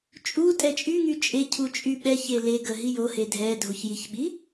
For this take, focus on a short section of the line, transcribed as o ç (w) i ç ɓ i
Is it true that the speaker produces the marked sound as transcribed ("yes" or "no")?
no